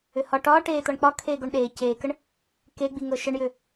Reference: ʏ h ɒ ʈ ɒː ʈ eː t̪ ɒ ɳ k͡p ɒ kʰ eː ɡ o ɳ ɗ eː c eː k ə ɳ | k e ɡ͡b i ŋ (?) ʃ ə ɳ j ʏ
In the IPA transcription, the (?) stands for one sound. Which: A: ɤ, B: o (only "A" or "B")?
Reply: A